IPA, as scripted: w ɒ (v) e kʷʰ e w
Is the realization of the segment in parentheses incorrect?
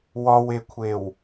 yes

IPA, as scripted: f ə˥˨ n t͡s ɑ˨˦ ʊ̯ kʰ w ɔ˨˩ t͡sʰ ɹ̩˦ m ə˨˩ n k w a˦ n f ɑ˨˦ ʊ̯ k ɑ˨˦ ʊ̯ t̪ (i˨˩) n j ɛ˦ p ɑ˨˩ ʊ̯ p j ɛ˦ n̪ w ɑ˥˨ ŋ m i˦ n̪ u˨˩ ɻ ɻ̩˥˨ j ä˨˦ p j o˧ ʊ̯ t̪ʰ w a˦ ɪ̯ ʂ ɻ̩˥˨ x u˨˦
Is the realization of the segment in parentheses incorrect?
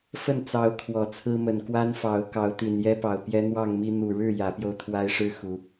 no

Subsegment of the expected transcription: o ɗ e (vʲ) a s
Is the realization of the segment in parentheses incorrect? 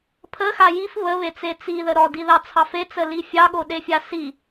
yes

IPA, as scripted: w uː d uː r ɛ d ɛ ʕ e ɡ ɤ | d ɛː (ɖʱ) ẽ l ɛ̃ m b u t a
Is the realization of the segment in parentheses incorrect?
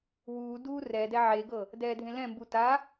yes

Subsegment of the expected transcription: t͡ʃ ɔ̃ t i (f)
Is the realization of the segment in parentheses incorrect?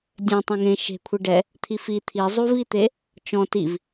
yes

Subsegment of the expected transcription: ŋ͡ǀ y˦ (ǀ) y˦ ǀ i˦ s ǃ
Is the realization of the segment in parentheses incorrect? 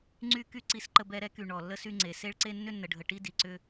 yes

